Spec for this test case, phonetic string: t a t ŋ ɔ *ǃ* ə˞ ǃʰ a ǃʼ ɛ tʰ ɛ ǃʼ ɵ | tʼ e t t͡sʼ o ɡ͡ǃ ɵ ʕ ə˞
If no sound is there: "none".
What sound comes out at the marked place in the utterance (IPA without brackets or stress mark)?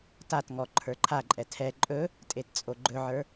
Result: ǃʰ